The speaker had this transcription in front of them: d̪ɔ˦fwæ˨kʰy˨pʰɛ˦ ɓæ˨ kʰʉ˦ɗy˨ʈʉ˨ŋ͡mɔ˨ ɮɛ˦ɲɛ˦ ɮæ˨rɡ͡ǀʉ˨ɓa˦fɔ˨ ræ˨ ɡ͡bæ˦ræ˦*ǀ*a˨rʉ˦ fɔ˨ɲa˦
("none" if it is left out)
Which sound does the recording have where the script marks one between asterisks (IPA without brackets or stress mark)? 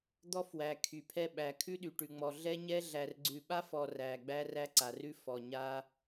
ǀ